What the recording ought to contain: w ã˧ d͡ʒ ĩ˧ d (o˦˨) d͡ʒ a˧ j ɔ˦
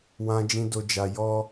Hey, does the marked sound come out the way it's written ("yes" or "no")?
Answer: no